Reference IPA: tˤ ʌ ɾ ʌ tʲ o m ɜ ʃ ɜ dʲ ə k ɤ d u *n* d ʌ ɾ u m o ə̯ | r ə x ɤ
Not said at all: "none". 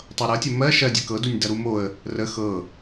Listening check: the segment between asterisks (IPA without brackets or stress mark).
nʲ